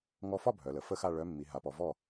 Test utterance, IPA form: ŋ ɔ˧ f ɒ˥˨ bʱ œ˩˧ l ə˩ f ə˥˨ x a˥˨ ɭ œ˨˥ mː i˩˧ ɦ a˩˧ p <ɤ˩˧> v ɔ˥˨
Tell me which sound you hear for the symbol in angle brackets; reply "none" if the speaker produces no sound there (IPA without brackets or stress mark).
ɔ˩˧